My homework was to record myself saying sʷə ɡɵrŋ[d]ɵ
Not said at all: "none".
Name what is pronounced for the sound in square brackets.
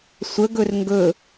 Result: ɡ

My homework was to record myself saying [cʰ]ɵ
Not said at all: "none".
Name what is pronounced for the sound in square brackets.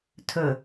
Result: tʰ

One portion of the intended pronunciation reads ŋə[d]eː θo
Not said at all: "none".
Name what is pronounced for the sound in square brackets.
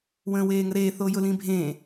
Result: ɾ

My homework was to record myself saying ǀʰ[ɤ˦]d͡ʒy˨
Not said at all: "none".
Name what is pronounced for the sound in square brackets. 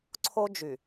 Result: o˦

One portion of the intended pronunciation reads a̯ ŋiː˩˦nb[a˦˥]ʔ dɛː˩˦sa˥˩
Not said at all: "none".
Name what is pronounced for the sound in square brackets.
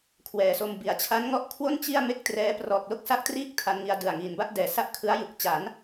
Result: a˥˩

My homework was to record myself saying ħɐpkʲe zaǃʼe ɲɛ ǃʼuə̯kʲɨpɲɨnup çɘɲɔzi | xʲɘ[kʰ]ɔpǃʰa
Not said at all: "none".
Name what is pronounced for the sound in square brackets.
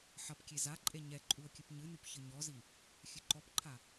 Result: ǃ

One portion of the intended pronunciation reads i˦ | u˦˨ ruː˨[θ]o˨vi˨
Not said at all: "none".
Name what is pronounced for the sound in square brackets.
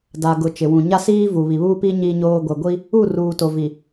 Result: t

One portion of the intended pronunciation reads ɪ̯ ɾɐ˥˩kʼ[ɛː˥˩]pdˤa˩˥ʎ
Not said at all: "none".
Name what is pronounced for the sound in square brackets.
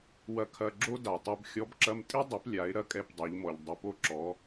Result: ɛ˥˩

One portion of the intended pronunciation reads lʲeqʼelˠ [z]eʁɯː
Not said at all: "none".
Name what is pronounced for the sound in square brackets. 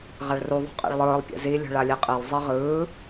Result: zˤ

